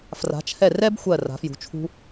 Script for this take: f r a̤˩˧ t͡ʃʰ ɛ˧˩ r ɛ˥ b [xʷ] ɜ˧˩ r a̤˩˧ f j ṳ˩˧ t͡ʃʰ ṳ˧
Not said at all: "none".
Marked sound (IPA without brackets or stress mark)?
xʷ